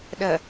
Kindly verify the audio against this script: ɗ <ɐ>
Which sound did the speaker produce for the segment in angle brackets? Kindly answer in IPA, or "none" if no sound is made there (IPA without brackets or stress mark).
ɐ